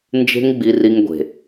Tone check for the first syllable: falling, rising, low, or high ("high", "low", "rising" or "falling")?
high